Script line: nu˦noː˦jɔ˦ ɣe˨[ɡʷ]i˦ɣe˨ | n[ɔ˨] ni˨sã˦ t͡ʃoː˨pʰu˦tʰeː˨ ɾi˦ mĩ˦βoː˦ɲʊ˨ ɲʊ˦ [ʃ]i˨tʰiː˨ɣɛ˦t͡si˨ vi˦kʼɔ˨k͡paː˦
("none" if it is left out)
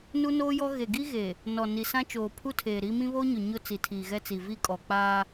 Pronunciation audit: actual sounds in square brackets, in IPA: ɡ, ɔ˨, t͡s

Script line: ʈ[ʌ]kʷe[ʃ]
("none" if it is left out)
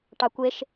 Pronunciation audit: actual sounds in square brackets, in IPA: ɑ, ʃ

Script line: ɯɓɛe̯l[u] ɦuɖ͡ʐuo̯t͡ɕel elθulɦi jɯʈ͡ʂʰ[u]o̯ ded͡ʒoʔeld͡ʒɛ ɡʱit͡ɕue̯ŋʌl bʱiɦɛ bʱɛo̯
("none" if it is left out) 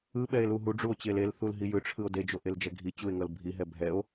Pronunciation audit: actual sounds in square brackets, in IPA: u, ɯ

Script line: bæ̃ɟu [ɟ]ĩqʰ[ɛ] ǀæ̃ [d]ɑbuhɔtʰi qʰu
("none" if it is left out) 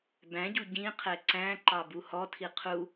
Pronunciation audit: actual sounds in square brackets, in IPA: ɟ, ɛ, ǃ

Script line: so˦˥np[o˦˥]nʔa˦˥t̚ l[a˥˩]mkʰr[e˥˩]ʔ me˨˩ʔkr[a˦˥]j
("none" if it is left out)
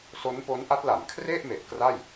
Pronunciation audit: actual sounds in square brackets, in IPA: o˦˥, a˩˦, e˥˩, a˥˩

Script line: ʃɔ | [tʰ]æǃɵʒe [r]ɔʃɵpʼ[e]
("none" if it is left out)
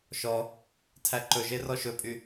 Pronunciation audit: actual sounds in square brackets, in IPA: tʰ, r, y

